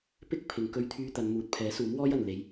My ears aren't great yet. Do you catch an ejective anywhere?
no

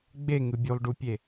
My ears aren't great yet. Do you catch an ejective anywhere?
no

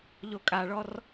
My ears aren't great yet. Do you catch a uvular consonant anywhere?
no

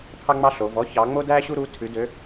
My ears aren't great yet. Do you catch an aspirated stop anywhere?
yes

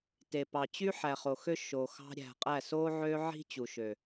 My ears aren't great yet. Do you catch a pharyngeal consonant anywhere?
yes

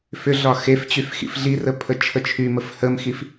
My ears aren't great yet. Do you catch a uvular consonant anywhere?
no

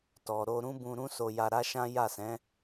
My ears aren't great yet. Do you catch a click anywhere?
no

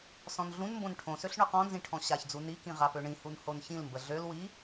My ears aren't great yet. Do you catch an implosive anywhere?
no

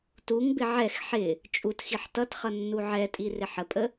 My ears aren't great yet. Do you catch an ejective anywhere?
yes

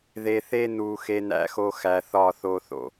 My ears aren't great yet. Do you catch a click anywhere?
no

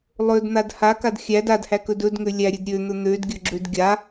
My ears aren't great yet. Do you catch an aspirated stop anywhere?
no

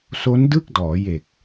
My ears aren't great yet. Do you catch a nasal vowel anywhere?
no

